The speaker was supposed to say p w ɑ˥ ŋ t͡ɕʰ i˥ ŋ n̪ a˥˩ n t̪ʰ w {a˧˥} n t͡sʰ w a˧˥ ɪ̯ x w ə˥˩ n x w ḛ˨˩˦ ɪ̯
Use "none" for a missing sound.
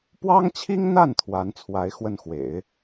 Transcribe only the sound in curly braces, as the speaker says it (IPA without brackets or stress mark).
a˧˥